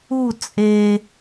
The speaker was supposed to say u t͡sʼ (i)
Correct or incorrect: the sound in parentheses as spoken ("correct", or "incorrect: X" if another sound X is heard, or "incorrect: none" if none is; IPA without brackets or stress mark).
incorrect: e